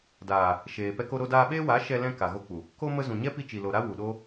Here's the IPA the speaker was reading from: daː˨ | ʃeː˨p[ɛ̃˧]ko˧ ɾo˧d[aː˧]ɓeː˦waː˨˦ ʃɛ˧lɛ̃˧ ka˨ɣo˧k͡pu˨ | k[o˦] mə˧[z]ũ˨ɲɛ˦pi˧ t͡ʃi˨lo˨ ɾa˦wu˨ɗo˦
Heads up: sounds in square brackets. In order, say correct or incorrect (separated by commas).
incorrect, correct, correct, correct